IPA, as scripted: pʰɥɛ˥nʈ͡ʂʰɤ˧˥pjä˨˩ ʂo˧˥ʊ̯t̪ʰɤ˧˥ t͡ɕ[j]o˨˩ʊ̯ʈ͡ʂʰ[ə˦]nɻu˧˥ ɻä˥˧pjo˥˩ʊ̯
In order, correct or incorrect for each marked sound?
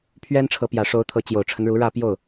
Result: correct, correct

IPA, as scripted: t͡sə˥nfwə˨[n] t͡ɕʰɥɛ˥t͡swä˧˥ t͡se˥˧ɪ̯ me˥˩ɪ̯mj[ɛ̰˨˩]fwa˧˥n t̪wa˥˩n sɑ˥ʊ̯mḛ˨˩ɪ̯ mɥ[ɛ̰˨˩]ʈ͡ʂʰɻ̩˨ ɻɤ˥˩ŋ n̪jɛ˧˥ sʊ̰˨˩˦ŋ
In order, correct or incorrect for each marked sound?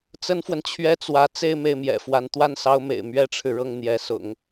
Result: correct, correct, incorrect: ɛ˥

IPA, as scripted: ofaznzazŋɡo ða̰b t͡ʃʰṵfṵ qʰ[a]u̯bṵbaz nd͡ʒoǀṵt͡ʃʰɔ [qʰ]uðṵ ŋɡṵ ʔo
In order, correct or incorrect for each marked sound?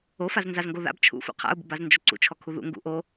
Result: incorrect: a̰, incorrect: kʰ

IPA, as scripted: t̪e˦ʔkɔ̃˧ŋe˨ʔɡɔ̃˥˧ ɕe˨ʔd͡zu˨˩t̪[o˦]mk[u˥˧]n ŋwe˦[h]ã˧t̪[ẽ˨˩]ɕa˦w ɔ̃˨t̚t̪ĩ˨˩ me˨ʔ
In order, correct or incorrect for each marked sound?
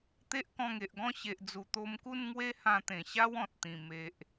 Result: incorrect: o˧, correct, correct, correct

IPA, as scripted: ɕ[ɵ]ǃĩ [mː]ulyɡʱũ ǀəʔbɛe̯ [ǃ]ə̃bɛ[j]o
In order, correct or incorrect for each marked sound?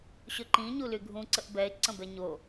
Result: correct, incorrect: ɲ, incorrect: ǀ, incorrect: ɲ

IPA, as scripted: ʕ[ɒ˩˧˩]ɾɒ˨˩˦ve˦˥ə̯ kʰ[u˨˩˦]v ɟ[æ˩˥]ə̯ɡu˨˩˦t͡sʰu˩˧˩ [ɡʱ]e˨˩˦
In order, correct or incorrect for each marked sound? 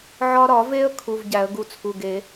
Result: incorrect: ɒ˧, incorrect: u˩˧˩, incorrect: æ˨˩˦, incorrect: ɡ

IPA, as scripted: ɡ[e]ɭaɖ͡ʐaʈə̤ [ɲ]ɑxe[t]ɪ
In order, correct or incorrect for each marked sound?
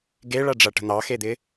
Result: correct, incorrect: n̪, incorrect: d̪

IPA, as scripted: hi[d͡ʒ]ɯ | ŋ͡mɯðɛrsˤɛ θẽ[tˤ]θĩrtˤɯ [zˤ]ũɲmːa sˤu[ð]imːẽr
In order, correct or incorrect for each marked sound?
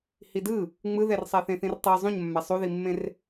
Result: incorrect: d, incorrect: none, correct, correct

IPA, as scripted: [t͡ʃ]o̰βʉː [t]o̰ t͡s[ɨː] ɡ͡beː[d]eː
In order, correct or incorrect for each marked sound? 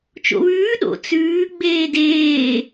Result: correct, incorrect: ɗ, incorrect: ʉː, correct

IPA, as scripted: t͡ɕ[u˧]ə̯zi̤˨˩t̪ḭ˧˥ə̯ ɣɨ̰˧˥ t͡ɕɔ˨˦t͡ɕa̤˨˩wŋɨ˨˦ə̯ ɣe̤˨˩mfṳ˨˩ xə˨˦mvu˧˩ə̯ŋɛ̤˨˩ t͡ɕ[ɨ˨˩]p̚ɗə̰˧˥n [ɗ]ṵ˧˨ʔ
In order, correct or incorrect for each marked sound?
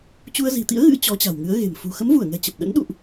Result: correct, incorrect: ə˨˩, correct

